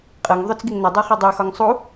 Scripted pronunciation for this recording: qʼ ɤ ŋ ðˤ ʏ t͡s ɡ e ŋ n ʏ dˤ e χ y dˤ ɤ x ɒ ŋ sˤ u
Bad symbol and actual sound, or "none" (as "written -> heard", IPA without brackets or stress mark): none